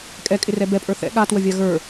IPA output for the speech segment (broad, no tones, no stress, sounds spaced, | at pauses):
kʼ ɛ kʼ ɪ r ɛ b ɛ pʼ ə˞ θ ɛ̰ ɠ a t w ə vʲ a ɣ ə˞